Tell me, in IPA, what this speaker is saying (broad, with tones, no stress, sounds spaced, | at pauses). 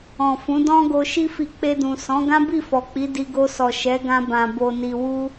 ɔ̃˨ f ũ˨˦ d ɔ̃˦ ɡ o˧ ʃ i˦ f i˧ k͡p e˧ d ũ˨ s ɔ̃˨˦ ɡ ã˦ b i˦˨ f ɔ˨ k͡p i˨˦ d i˧ ɡ o˧ s ɔ˨ ʃ ɛ˨˦ ɡ ã˧ b ã˨ b o˨ n i˨ w u˧